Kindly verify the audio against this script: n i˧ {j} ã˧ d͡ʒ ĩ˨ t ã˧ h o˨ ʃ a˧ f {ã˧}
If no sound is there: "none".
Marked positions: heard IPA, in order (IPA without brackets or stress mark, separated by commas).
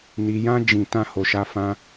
j, ã˧